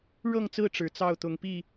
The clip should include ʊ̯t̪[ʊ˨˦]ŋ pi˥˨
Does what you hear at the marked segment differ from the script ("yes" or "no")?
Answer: no